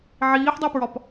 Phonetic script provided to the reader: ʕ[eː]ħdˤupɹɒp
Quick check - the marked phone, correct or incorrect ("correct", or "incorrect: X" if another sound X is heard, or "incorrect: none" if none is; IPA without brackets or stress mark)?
incorrect: iː